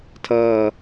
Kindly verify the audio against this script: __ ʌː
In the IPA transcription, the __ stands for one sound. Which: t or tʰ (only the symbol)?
tʰ